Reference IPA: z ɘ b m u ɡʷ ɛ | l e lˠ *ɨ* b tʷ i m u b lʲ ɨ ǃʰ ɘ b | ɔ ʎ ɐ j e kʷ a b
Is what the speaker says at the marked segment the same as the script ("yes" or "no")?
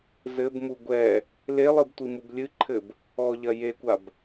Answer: yes